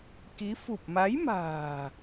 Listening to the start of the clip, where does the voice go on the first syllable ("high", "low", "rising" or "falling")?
rising